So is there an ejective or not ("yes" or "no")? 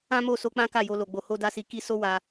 no